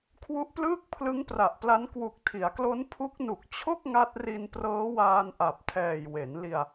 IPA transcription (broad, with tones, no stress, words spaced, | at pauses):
kʰwu˦˥ʔplɯː˥˩k̚ pʰlɯ˦˥ŋpra˨˩ʔpla˦˥n kwu˨˩k̚tʰi˩˦a̯klo˦˥n pʰu˦˥k̚nu˨˩k̚ t͡ɕʰo˥˩k̚ ŋa˦˥t̚ri˧n prɤː˦˥waː˧nʔa˨˩p̚tʰɛː˨˩j we˩˦nli˧a̯